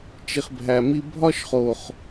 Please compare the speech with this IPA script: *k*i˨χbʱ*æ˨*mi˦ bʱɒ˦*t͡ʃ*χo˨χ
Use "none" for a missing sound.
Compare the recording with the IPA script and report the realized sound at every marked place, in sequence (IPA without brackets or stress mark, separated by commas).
t͡ʃ, æ˨, ʃ